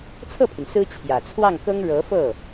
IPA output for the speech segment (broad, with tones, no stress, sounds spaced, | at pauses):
t͡sʰ ɤ˥˩ pʰ y˩ n s ɹ̩˥ t͡ɕʰ j ä˨˩ t͡sʰ w ɑ˥˩ ŋ k ɤ˥ ŋ ɻ ɤ˧˥ f ɤ˥˩